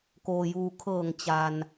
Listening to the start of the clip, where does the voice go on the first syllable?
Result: low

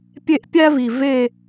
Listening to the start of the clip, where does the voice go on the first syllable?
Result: falling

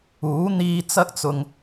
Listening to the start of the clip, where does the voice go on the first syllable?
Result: rising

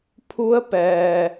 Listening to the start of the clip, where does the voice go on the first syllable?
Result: rising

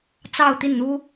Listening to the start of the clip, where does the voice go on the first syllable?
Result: falling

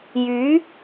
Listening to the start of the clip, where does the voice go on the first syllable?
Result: rising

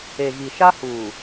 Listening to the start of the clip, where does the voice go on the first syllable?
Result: low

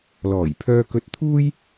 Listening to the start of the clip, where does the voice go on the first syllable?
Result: low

